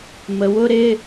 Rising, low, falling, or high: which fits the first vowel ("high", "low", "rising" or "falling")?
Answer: rising